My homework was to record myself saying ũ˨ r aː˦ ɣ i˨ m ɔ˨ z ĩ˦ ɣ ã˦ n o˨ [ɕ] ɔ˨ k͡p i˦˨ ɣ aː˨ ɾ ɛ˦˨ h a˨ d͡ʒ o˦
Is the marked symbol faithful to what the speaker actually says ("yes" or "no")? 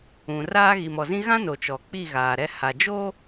no